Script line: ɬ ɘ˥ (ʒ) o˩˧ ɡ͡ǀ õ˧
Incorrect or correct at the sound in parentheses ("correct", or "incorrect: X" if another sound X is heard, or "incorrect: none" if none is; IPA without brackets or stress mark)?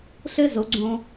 incorrect: z